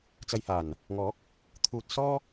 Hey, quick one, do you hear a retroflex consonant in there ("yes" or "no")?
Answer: no